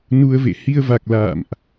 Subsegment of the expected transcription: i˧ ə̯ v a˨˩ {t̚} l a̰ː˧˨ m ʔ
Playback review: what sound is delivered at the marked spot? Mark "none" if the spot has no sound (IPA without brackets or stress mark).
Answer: k̚